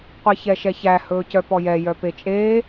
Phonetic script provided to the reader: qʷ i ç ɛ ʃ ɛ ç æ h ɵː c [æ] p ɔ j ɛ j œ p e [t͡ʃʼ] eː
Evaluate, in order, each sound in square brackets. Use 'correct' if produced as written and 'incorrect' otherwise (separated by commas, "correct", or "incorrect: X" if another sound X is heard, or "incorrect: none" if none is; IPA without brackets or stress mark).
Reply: incorrect: œ, correct